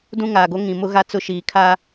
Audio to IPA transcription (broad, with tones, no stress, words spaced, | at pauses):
dũ˦ŋaː˨ɡo˦ ŋĩ˨mʊ˦ɣa˦ t͡sʊ˦ʃiː˨kʰa˦